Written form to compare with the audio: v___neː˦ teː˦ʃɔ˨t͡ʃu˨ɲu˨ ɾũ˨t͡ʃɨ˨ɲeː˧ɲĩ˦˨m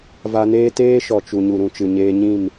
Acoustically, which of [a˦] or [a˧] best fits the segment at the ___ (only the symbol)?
a˧